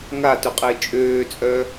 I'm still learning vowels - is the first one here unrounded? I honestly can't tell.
yes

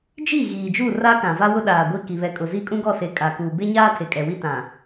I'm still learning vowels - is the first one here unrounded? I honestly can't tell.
yes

